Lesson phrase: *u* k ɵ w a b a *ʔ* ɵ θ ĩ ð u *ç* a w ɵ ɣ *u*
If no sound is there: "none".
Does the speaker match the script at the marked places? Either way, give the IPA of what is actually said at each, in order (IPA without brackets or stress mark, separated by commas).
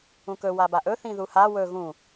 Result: ũ, ʔ, h, ũ